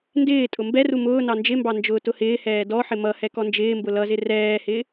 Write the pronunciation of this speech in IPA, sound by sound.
n d ɪː tʼ ʊ m b ɛ r u m ʊː n ɑ n d͡ʒ ɪ m b ɑ n d͡ʒ ʊː t ʊ h ɪː h ɛː d ɔ ħ ɪ m ʌ h ɛ k ɔ n d͡ʒ ɪː m b ʊ l ʌ z ɪ r ɛː h ɪ

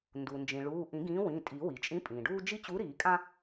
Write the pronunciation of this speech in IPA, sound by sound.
n d u˩ n d͡ʒ ĩ˩ ɭ uː˩˧˩ ʔ ĩ˨˩˦ ɡ ĩː˨˥ w ĩ˩˧˩ tʼ i˨˩˦ w i˩ t͡ʃʼ ĩ˨˥ pʼ ĩː˩ ɖ uː˦ d͡ʒ i˦ t͡ɕ u˨˥ ɾ iː˨˩˦ kʼ ã˦

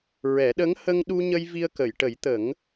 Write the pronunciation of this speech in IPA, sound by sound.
ɹ ɛ˨˩˦ ɗ ə˧˥ ŋ h ə˧ ŋ ɗ u˧ ɲ ə˧ j v i˧ ə̯ k ə˨˩˨ j ʈ ə˨˩˦ j t̪ ə˨˩˦ ŋ

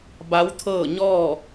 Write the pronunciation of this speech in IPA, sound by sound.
b a˧˥ w t̪ʰ ɤː˥˨ ɲ ɔː˥˨

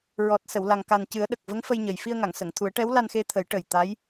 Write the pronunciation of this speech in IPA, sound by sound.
ɹ ɔ˨˩ t̚ s ə˨˩˨ w l a˨˩ ŋ k a˨˩ n c ɨ˨˩˦ ə̯ ɗ ə˨˩ k̚ v ə˧˥ ŋ f ə˧ j ɲ ə˨˩ j f i˧ ə̯ ŋ a˨˩˨ ŋ s ə˨˩˨ ŋ t̪ʰ u˨˩˦ ə̯ ʈ ɛ˧˥ w l a˧ n x e˧ t̪ʰ ə˨˩˦ j ʈ ə˨˩ j t̪ a˧˥ j

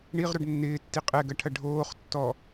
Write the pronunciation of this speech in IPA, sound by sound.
ɳ i ʁ ɾ o ɖ nː ɪː tː i qʼ ɛ ɡ ɐ ʈʰ ɐ ɖʱ oː χ tː ɔ

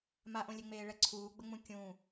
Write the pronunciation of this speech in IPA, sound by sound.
m a ʔ õ lʲ e ŋ͡m eː ɭ ɛ ǀʰ uː ɡ͡b ə ŋ͡m ũ kʲ ũ

